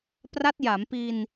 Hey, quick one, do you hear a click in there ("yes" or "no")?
no